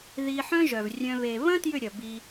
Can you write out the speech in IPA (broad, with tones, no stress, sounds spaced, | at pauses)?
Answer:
ð i˧ ħ œ̃˦ ʒ œ˨ v rʲ œ̃˧ β e˨ β ɐ̃˦ t j ʏ˦˨ ɾʲ ɐ˨ b i˧